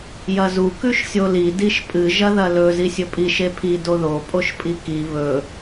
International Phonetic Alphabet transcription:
j ɐ z u k ʉ ʃ sʲ o l i d i ʃ pʼ ɨ ʒ ɐ ð ɐ l ɵ z i sʲ ɵ pʼ i ʃ e pʰ i d o ð o pʼ o ʃ pʼ i k i β ɵ

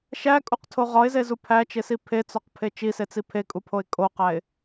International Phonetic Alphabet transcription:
ʃ æ kʼ u q tʰ o ʁ ɒ ɪ̯ z e z u pʰ æ t͡ʃ e s i pʰ e t͡s ɒ q pʰ e t͡ʃ i s e t͡s i pʰ e kʼ u pʰ o ɪ̯ kʼ o q æ ɪ̯

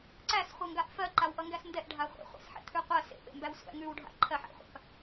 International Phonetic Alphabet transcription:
ǀ æ s χʷ ɜ ŋ ɡ a ʔ f ɜ ǃ a w ʔ ʌ ŋ ɡ æ s n d ɛ ʔ ɖʱ a χʷ ɛ̰ χʷ a̰ s ħ ɛ̰ t̪ʰ ʉ qʷ ɜ s ḛ p ḛ m b æ w sʷ æ̰ ŋ ʉ w ɖʱ a̰ ǃʰ ɜ ħ æ̰ χʷ a̰ p

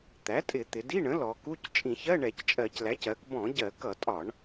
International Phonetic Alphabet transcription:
t̪ æ˩˥ tʼ ɪ˧˩˧ t̪ ɪ˩˧ d i˧˥˧ ɳ ə̃˩˥ l ɔ˩˧ k u˧˥˧ c t͡ʃʼ ĩ˧˩˧ ç ɜ˧˥˧ ɳ ɛ˧˩˧ c t͡ʃʼ ɜ˧˩˧ c l æ˩˥ c ɜ˩˧ k b ɔ̃˧˩˧ ɟ ɜ˧˩˧ k ʌ˧˩˧ tʼ ɒ˧˩˧ ɳ

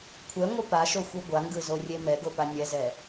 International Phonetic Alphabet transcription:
kʷʰ ɛ ŋʷ ɯ p a ʃ o xʷ i ɡʷ a ŋ ɡ ɯ z o rʲ e m ɛ ɡ o p a nʲ ɛ z ɛ

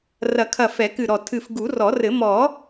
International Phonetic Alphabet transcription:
r ɐ˨˩˦ kʰ ɐ˧˩ f ɛ˨˩˦ k ɨ˧˩ ɾ ɔ˧˩ tʰ ɨ˧˩ f ɡ u˨˩˦ r ɔ˨˩˦ r ɘ˨˩˦ m ɔ˨˩˦

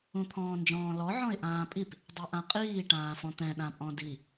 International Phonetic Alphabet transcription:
ũ t̪ʰ ɔ̃ː n d͡ʒ ɔ̃ː l ɔ ʕ ɔ̃ ɪ̯ ʔ ãː pʼ i p | dˤ ɛ ʔ ã qʼ iː ʈ ãː f ɔ̃ t̪ ɛ̃ ɗ ã pʼ ɔ̃ d i

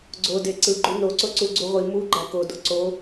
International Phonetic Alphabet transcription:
ɡ͡ǀ o d e ǀ ɯ ɡ͡ǃ u n o ǀ o ǀ u ɡ͡ǀ u ʁʷ i m u ɡ͡ǃ æ k o d o ǀ o

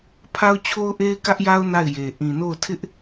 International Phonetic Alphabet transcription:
pʰ a˦ ʊ̯ t͡ɕʰ o˦ ʊ̯ ʔ e˦ ɪ̯ k ä˦ ʔ j a˦ ʊ̯ n a˦˨ ɪ̯ j e˨ ʔ ĩ˨ n o˦˨ ʊ̯ tʰ ɪ˦ ʔ

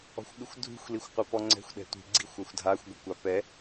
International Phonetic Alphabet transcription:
ɔ̤ xʷ ɠ ɯ xʷ dʱ ṳ xʷ l i xʷ qʷ a p ɔ ŋ͡ǀ ɛ̤ xʷ ɗ ɛ̤ tʷ i̤ ɡ͡ǀ i xʷ a xʷ dʱ a xʷ ɡʷ ɛ kʷ a p ɛ

